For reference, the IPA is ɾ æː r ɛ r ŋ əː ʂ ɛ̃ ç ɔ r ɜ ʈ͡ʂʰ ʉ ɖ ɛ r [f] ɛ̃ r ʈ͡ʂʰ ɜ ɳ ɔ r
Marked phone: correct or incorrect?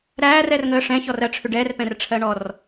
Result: incorrect